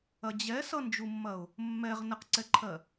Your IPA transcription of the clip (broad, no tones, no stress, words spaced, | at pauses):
ɐd͡ʑɛ sʌnd͡ʒumːɐʊ̯ | mːɛʁ nəqǀɛǃʰɜ